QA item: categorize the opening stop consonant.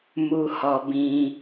plain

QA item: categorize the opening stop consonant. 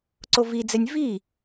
click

